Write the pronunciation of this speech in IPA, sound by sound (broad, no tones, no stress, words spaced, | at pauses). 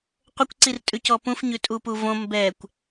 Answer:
qʷəkʷ ǀirtʼʉcɔpũf ɲʉtʼupuvõ mbɛkʷ